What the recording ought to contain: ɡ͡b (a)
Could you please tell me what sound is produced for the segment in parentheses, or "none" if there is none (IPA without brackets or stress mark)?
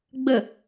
ə